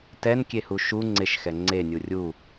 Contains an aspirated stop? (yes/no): no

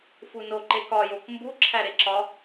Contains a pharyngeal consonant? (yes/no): no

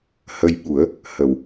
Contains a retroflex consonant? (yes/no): no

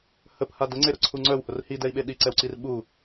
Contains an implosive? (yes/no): yes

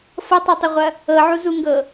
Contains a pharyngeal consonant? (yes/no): yes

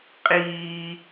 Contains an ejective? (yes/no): yes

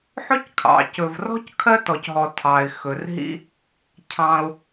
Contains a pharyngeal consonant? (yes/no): yes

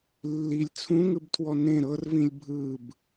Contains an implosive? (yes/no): no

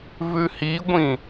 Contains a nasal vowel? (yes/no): yes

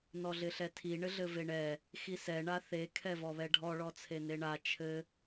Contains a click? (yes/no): no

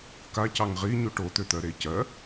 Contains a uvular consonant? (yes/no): yes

